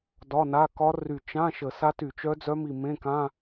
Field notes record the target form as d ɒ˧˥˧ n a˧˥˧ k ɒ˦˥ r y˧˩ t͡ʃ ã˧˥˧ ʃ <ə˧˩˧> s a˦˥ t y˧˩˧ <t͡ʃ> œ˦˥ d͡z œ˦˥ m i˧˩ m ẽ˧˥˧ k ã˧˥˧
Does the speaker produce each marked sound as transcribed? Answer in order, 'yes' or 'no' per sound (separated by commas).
yes, yes